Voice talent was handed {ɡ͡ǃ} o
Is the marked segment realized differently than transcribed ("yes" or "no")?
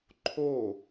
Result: yes